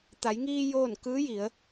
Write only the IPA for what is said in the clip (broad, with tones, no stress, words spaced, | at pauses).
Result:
t̪a˩˧jŋiː˧ joː˥˨n kɯː˧˥ji˩˧ə̯